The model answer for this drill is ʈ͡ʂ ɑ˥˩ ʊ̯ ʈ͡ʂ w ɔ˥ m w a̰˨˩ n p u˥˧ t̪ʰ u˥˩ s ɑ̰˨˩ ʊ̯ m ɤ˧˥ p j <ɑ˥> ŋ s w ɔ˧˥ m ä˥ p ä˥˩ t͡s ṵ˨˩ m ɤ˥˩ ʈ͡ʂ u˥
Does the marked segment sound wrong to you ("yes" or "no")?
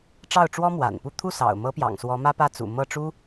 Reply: yes